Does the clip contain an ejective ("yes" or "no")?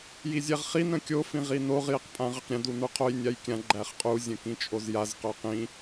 yes